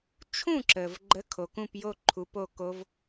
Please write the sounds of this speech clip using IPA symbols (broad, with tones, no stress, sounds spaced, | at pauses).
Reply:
t͡ʃʰ ũ˥˨ ǁ ə˩ v ɡ͡ǃ ə˨˥ kʰ o˩ k ũ˥˨ p j o˥˨ ǃʰ u˨˥ p o˥˨ k o˦˥ v